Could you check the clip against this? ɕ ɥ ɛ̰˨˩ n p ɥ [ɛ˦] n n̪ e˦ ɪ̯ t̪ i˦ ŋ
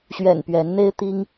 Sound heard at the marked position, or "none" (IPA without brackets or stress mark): ɛ˨˦